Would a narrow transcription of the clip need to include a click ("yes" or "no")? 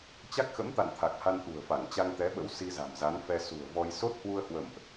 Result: no